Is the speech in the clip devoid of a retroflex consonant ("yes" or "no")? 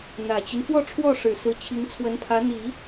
no